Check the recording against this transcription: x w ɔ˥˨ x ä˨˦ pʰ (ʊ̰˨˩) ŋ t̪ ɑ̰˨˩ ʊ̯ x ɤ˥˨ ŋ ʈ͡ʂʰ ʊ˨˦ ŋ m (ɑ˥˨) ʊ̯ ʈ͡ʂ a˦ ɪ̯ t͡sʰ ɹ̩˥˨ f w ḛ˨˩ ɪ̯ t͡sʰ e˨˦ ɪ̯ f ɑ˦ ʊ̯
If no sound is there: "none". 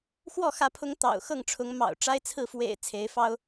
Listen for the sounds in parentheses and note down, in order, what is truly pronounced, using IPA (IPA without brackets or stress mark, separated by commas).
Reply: ʊ˨˦, ɑ̰˨˩